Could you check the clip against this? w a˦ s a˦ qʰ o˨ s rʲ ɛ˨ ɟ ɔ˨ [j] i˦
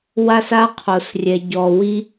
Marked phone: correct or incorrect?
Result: incorrect